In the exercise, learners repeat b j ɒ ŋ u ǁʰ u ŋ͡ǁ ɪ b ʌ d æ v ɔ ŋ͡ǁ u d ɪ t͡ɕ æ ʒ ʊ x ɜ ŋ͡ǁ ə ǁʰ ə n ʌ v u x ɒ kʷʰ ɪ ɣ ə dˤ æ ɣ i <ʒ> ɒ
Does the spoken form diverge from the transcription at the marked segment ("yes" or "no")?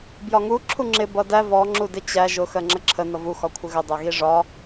yes